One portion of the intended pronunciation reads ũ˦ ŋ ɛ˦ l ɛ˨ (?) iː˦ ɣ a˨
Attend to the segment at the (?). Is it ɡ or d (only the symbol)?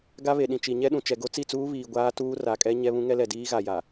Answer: d